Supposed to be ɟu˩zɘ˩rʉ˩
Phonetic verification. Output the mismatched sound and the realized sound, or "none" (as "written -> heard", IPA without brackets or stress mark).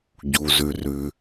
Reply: ɘ˩ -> ʉ˩